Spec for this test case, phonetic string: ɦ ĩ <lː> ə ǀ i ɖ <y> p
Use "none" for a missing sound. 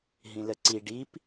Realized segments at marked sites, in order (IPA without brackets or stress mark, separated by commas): l, i